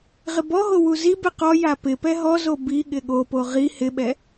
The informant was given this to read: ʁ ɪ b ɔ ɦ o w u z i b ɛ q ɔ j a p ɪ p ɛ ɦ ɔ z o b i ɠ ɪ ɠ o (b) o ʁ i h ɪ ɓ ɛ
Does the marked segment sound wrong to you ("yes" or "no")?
yes